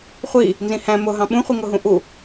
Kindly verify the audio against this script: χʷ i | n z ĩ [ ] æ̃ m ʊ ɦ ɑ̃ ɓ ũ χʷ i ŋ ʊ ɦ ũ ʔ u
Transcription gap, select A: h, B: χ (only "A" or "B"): A